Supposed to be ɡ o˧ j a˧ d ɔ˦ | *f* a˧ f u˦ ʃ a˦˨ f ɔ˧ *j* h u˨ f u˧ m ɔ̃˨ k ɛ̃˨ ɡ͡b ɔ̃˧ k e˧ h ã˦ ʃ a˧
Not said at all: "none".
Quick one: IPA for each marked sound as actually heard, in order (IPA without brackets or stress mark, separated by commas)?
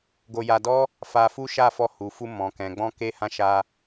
f, none